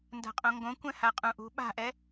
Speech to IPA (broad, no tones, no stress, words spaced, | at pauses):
nda̤qʼõŋɡõkʷɛ̃ haqʼũʔṳ ɓa̤ʔɛ